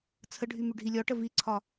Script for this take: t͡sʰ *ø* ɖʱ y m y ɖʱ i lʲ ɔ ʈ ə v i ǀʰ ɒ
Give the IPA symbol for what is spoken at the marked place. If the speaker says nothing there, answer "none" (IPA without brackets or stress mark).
ə